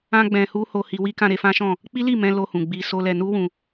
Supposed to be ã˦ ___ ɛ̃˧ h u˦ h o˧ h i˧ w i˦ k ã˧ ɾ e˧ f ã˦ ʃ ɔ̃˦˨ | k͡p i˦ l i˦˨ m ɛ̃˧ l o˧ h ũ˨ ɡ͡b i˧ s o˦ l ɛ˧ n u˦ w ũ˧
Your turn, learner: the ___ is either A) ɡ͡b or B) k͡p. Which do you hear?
A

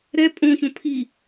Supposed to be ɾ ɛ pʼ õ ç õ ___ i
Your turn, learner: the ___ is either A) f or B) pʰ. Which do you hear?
B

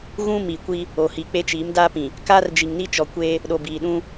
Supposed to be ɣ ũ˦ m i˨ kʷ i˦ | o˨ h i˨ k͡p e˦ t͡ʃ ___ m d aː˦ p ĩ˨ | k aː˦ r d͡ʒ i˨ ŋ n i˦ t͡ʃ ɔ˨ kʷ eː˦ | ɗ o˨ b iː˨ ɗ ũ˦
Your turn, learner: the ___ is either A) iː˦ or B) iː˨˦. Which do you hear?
B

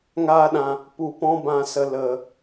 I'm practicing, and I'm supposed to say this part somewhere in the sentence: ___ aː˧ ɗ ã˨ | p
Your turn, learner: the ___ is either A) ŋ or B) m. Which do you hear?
A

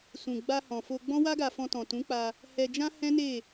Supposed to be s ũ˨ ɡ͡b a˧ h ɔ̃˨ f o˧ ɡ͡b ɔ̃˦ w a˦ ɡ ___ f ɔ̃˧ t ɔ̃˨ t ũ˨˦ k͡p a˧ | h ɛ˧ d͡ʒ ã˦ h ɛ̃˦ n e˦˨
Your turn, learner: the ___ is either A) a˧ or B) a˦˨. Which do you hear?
A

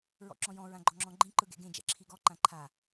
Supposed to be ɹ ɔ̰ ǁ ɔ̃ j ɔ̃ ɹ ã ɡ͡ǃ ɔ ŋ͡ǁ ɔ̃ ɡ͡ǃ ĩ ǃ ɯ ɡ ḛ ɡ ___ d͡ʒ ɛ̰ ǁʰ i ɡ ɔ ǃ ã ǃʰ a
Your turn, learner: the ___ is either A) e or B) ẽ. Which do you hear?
B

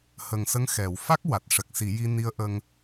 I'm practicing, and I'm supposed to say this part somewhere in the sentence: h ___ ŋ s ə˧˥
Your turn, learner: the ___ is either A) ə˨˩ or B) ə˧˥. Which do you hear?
A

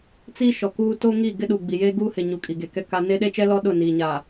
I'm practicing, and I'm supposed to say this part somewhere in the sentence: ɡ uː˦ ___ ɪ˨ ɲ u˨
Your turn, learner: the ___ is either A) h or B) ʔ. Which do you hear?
A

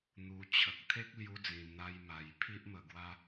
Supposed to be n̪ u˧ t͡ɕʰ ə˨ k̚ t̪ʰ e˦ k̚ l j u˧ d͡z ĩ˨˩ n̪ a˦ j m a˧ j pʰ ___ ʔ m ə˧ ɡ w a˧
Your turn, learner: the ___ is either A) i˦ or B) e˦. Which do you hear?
A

